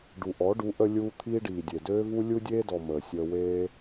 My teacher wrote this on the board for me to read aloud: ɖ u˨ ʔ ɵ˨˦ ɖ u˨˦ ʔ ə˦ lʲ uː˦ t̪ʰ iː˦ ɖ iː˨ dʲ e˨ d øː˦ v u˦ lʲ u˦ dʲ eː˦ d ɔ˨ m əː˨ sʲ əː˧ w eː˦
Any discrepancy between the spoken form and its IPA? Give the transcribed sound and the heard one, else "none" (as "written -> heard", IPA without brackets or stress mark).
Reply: ɵ˨˦ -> ɔ˨˦